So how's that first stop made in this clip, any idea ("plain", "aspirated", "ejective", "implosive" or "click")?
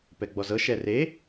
plain